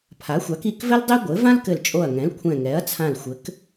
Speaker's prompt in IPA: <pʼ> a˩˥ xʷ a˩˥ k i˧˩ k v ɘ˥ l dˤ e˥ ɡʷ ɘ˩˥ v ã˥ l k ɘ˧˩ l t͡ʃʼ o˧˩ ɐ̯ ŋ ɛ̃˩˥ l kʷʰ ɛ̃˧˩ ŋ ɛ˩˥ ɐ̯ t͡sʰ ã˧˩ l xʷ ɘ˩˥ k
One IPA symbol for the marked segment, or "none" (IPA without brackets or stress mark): pʰ